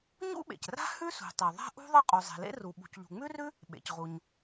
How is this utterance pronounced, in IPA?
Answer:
ɲ ṵ˥ ɓ ḛ˩ c r a̤˥ h ʉ˥ s ṳ˩ tˤ e˩ ðˤ a̤˥ ʔ ṳ˥ ðˤ ɤ˥ qʼ u˩ zˤ e̤˩ l ḛ˥ r u˩ ɓ ṳ˩ c ʎ ṳ˩ ŋ͡m ʉ˥ r ʉ˥ | ɓ ḛ˩ c ʁ u˩ ɲ

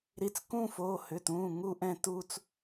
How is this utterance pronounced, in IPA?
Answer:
ɾ i˩˧˩ t͡s k ũː˥˧ f oː˩˧˩ h ʏ˩˧˩ t ũː˩˧˩ ŋ u˥˧ ʔ ɛ̃˥˧ t u˥˧ t͡s

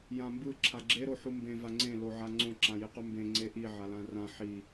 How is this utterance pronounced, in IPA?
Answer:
j ã m b ɯ ǁʰ a ɡ͡ǁ e ɾ o ħ u m b ẽ v a ŋ͡ǀ ẽ l o ʕ a ŋ͡ǀ õ ǁ ã j i q u m b ẽ ŋ͡ǀ e ʔ i ʕ a l ã r ã ħ i

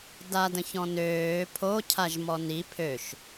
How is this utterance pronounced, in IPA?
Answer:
d a d ə̃ ç ɔ̃ n øː pʰ o cʰ a ʒ m ɔ n i pʰ ø ʃ

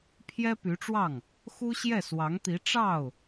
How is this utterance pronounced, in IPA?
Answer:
pʰ j ɛ˥ p y˧˥ ʈ͡ʂ w ɑ˥˩ ŋ | x u˥ ɕ j ɛ˥˩ s w ɑ˧˥ ŋ t̪ i˧˥ ʈ͡ʂ ɑ˥˩ ʊ̯

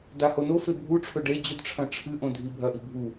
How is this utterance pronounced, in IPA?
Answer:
d a h o n o f e bʱ u ʈ͡ʂʰ ɵ ɖ e d͡ʑ ɵ d ʈ͡ʂʰ ɐ̃ ʈ͡ʂʰ ɨ ʔ õ dʱ i bʱ ɐ ʔ i bʱ u

